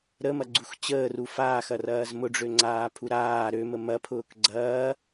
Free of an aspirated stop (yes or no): no